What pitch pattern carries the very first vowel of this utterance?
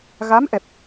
rising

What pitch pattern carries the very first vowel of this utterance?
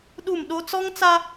falling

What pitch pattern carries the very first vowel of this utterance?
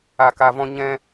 low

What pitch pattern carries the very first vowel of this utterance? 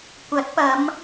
rising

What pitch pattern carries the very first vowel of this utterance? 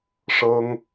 high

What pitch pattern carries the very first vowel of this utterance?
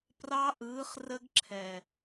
high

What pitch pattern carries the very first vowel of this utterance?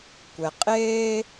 low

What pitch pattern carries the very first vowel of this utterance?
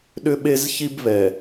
high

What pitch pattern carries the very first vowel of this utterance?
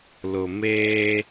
low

